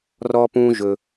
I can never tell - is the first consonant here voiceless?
no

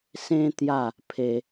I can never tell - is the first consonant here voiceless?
yes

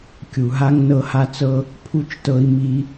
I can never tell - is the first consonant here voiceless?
yes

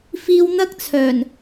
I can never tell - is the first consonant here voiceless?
yes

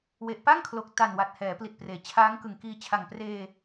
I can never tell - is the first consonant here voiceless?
no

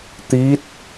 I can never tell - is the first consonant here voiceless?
yes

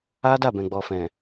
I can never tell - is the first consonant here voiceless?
no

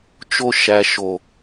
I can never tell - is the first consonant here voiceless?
yes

